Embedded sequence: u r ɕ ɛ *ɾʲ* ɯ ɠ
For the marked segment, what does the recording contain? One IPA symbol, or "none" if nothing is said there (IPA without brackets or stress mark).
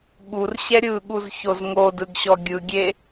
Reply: ɾʲ